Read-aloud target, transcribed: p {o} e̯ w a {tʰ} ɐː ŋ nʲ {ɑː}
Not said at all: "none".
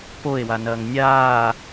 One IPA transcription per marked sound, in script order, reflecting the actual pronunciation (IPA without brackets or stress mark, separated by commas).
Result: o, n, aː